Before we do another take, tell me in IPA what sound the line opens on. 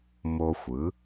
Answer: m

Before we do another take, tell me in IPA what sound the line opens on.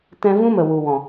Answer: t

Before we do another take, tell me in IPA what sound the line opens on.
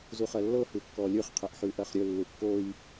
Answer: z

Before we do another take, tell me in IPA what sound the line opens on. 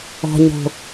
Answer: ɔ̤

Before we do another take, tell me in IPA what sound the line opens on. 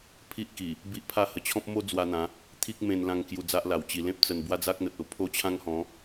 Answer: pʰ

